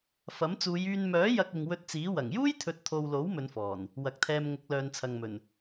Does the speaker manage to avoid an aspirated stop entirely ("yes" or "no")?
no